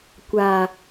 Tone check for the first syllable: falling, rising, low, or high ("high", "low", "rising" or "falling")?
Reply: low